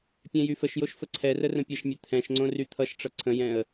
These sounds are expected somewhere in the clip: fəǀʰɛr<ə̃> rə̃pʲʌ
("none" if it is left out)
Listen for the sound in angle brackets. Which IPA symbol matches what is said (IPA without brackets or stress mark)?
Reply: ə